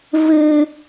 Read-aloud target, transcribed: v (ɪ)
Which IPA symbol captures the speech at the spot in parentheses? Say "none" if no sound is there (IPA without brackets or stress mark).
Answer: ɨ